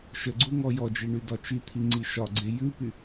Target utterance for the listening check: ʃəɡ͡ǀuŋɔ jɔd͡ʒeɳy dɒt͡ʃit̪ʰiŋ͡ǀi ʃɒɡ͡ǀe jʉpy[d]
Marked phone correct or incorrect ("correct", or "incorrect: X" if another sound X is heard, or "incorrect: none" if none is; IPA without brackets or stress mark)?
incorrect: none